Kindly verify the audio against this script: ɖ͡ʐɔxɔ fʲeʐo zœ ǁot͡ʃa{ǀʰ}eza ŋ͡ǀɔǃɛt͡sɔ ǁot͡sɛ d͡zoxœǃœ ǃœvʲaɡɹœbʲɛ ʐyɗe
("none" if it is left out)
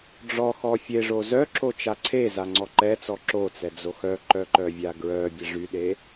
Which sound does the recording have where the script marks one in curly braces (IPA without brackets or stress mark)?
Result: ǀʰ